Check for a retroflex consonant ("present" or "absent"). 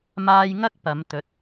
absent